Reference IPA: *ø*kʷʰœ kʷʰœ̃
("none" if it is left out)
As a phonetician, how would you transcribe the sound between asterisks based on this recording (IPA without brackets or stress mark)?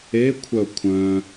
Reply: e